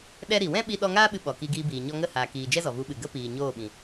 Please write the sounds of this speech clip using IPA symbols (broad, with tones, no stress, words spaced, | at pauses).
ɗɛ˦ɾi˨ wɛ̃˦ɓi˧ɗɔ˧ŋaː˦ ɓɨ˧ ɓɔ˨ki˧ɡiː˧biː˨ ɲɔ˧ŋə˦˨haː˨kiː˨ d͡ʒɛ˦zɔ˨vu˨˦ɓɨ˨ ɡə˦piː˨ ɲoː˦˨ɓĩ˨